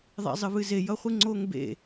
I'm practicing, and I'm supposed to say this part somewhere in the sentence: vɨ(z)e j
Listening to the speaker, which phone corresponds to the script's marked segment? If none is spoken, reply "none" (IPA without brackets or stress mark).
z